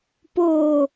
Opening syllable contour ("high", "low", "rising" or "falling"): low